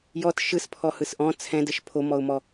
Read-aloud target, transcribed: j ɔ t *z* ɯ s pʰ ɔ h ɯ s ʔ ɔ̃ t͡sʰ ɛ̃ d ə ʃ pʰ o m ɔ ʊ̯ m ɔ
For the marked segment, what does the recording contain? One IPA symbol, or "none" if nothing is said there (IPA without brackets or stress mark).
ʃ